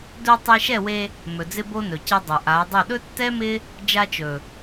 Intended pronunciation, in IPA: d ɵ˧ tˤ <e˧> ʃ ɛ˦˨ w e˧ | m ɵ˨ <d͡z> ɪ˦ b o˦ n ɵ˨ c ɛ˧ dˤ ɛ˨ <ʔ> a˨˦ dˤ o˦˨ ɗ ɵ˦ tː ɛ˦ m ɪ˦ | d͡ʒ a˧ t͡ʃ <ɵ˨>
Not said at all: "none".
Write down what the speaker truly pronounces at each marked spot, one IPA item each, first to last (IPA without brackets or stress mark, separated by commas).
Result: e˧, d͡z, ʔ, ɵ˨